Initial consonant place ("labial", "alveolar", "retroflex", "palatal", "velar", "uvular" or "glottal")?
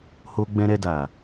glottal